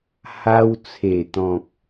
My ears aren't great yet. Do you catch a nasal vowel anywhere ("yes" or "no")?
yes